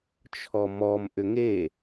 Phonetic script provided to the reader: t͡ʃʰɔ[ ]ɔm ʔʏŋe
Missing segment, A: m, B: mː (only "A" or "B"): A